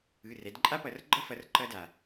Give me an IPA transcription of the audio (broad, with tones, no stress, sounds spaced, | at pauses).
ɯ˩˧˩ r ɛ˩˧ d ǃʼ a˦ p ʌ˩˧ r ɡ͡ǃ ʌ˦ f ʌ˩˧ r ǃ ʌ˦ d a˩